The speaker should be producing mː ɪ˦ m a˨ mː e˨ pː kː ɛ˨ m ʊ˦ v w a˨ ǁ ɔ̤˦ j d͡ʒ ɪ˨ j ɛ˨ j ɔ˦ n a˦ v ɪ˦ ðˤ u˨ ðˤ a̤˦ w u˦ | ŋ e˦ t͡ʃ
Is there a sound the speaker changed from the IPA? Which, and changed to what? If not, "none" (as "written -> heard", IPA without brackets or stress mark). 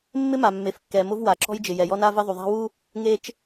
pː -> f